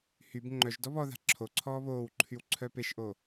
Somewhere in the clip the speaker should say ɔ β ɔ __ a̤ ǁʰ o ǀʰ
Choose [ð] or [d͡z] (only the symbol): ð